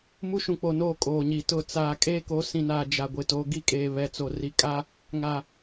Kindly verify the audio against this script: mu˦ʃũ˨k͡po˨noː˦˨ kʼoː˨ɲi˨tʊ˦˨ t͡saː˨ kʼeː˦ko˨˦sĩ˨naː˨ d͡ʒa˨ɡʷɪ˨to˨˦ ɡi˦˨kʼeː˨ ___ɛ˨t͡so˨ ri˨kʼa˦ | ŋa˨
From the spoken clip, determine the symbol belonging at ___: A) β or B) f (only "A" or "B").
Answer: A